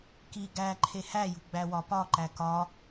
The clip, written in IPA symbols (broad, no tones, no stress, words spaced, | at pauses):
ki ɡæ ǃʰehæjṳ ɡ͡bæwɒpɒǃæ kɒ